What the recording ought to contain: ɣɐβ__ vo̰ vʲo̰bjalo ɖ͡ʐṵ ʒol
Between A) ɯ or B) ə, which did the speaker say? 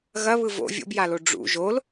A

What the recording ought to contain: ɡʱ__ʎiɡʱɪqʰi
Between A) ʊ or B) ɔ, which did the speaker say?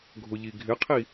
A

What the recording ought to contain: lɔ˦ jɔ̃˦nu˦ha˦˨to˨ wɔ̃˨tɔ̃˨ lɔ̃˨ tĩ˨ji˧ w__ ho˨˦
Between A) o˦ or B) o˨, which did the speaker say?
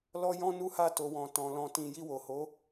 B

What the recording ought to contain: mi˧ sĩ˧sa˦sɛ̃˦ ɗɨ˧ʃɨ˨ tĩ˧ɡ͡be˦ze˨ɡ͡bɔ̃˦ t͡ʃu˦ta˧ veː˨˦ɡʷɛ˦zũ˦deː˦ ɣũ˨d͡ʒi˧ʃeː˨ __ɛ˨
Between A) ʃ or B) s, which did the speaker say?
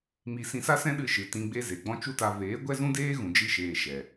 A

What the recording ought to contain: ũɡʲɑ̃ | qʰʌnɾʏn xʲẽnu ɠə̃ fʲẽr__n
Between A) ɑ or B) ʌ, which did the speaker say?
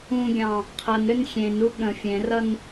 B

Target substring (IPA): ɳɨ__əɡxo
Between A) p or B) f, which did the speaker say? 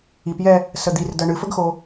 B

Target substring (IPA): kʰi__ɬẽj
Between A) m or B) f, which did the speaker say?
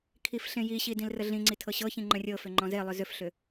B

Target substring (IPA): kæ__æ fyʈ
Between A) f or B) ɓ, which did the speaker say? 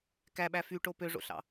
B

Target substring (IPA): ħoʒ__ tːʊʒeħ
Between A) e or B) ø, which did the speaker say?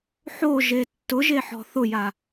A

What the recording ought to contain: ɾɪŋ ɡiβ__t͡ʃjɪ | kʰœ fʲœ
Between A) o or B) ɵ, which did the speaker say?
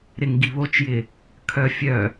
A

